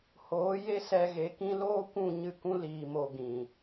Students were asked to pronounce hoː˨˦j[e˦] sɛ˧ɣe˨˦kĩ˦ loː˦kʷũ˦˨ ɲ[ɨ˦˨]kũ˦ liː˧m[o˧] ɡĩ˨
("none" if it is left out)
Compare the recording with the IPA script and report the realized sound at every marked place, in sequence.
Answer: e˦, ɨ˦˨, o˧

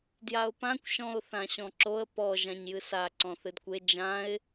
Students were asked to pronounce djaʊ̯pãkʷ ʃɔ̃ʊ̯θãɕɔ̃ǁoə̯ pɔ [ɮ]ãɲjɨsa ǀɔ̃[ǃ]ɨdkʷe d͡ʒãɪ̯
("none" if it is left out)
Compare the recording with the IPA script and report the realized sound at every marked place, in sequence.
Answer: ʒ, θ

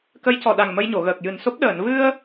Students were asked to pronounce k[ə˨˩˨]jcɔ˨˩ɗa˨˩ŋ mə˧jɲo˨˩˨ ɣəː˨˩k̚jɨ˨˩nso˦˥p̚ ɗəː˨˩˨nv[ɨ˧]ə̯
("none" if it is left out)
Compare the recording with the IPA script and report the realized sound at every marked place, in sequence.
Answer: ə˧˥, ɨ˧

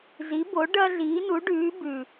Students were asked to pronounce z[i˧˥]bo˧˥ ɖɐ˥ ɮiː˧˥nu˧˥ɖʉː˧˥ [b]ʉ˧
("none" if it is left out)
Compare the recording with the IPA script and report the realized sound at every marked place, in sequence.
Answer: i˧˥, b

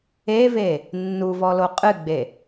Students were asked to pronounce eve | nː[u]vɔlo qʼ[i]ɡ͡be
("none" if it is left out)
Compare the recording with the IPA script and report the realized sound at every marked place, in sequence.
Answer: u, ɨ

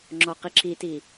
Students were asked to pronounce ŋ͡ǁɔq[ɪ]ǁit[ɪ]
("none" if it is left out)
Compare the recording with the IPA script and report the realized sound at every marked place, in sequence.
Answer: i, i

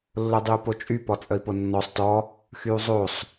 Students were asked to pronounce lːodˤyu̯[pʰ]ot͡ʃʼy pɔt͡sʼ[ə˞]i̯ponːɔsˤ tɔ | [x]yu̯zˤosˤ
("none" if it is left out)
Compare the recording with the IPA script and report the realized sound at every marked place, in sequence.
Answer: p, ə, x

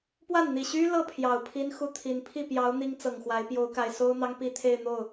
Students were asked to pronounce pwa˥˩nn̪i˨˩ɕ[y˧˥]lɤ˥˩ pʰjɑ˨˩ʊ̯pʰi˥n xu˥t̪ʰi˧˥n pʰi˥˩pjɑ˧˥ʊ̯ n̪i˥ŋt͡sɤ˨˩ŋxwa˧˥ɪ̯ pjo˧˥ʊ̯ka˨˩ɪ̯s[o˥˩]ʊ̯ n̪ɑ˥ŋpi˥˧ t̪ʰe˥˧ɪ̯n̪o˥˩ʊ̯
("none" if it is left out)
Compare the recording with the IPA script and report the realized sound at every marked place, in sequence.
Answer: y˥, o˥

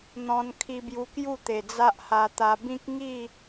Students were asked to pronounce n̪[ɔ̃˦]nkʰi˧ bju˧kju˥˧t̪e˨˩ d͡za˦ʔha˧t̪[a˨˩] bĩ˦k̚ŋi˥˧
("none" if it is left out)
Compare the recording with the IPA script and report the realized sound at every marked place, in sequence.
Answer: ɔ̃˧, a˧

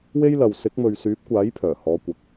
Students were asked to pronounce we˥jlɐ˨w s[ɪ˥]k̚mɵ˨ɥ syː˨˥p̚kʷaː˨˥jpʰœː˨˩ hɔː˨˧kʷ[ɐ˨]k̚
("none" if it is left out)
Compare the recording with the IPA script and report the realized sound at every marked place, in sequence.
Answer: ɪ˨˥, ɐ˨

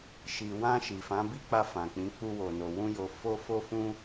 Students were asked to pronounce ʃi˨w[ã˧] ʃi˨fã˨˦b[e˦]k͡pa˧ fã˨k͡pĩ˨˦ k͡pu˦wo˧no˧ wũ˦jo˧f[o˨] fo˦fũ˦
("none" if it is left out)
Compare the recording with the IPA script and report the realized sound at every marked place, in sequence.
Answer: ã˧, i˦, o˦

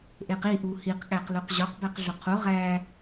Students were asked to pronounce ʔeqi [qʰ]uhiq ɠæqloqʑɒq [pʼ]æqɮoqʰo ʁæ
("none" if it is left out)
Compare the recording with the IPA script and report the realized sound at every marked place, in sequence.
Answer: ʔ, b

